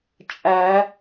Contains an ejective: yes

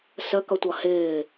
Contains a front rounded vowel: no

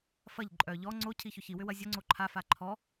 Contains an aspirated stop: yes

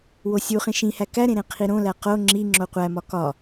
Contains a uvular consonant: yes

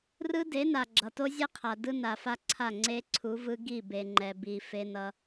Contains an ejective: no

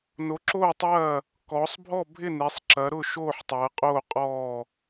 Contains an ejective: yes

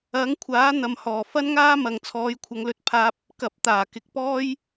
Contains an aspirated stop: yes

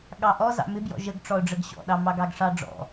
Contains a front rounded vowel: no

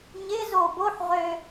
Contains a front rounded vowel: yes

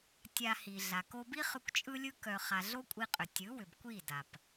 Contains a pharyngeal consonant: no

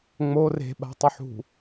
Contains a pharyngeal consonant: yes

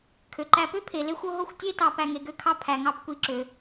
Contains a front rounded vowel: yes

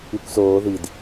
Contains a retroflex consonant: no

